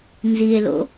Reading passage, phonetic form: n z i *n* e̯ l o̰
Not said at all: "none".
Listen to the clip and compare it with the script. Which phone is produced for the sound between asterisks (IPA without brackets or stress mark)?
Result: none